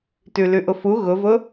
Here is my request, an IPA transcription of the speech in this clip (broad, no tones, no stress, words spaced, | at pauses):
tʉlʉʔʊfu ɣʊvʊ